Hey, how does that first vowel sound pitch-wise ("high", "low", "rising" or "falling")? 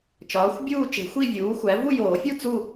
rising